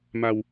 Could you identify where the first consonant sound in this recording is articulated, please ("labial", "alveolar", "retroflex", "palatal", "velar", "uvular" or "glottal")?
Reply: labial